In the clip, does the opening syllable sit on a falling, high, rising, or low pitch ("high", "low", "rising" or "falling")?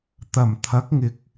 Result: low